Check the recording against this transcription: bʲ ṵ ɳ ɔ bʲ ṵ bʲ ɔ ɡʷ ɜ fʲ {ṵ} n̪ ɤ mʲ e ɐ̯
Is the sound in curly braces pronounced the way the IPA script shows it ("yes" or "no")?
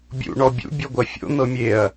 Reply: no